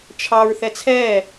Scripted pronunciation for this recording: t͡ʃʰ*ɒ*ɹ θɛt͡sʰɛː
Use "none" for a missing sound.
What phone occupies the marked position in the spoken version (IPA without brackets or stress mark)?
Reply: ɑ